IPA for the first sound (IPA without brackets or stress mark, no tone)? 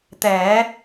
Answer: t̪